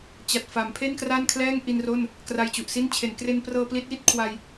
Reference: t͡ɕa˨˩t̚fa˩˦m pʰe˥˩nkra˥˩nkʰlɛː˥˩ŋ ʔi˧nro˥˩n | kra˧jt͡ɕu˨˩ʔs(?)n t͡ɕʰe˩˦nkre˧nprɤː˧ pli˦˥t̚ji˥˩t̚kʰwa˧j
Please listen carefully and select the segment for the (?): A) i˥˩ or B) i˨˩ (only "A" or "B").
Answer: A